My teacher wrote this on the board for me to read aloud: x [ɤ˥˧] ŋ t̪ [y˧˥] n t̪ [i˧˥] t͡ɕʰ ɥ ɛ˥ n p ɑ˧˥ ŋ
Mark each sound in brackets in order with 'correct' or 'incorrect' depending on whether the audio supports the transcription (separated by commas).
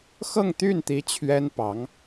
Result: correct, incorrect, correct